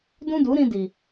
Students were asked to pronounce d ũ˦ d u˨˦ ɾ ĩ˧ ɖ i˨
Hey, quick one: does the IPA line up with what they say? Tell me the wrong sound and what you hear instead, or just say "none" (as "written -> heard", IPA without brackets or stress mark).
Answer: ɖ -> d